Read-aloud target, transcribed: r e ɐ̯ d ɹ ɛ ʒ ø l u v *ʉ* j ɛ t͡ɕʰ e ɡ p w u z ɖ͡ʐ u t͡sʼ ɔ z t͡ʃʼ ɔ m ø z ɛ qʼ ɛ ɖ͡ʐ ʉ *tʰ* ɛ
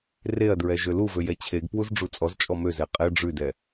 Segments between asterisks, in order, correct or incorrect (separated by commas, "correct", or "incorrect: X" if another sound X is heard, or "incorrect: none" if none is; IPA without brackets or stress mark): incorrect: ø, incorrect: d